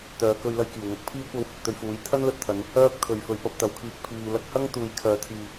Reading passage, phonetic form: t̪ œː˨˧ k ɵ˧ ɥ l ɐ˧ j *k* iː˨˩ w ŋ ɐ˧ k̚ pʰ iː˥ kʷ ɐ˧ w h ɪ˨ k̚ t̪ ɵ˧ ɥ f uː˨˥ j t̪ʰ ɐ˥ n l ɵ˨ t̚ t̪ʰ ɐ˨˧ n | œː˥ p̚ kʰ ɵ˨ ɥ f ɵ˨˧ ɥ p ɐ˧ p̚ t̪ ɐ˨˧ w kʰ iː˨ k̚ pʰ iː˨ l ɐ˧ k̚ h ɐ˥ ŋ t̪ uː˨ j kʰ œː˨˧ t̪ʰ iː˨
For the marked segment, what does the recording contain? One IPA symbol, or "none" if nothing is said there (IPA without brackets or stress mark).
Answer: k